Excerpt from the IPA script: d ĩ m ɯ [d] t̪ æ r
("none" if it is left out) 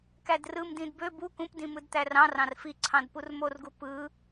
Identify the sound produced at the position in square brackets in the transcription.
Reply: d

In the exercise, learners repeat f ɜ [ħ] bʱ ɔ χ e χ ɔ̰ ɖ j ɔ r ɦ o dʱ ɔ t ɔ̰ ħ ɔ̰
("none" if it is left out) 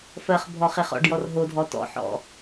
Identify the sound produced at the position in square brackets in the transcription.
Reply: χ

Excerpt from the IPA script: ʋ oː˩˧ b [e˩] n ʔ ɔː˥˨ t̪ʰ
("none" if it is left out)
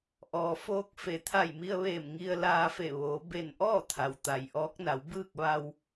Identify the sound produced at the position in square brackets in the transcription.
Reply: e˧˩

